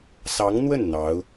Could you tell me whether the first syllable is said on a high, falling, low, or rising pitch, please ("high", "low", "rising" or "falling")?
rising